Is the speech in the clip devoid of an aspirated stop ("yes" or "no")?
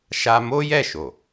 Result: yes